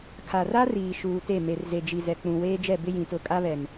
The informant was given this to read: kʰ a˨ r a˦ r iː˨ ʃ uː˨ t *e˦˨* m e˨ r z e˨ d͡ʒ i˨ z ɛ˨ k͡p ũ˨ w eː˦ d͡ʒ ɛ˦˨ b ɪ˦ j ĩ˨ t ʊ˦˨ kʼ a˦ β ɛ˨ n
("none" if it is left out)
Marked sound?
e˦˨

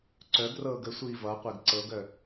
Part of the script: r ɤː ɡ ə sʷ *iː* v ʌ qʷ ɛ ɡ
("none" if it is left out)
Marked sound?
iː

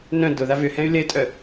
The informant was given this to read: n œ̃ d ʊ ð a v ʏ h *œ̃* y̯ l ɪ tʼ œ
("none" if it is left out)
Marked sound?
ɛ̃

